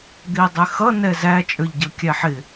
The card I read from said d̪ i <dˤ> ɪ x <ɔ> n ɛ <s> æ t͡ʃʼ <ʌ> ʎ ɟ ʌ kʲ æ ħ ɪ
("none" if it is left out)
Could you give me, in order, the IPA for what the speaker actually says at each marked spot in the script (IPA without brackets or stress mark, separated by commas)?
dˤ, ʌ, z, ə˞